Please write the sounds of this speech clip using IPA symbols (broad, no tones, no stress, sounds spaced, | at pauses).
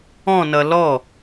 ɔ̃ n ʌ l ɔ